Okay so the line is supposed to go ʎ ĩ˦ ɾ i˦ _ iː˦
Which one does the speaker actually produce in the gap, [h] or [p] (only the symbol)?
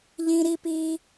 p